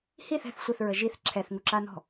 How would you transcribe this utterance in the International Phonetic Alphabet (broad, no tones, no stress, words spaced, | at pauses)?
hiθ ɛ̤θ sʷəθɹə ʒiθ ǁʰɛθŋuǁanɔ̤